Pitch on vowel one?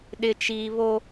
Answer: low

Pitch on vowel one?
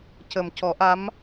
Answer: low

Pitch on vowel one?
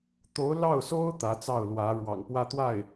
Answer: rising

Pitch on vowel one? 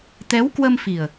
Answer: rising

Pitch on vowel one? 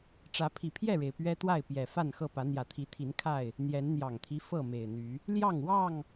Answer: rising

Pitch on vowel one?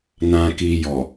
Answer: low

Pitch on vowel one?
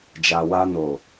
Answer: low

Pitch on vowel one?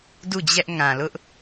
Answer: falling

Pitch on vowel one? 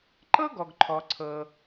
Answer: high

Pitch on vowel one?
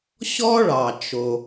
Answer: high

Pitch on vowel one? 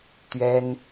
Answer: high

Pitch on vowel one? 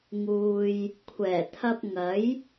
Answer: low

